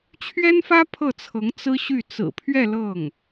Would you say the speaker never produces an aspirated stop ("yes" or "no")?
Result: no